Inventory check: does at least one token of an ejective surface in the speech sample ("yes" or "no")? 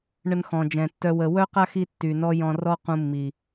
no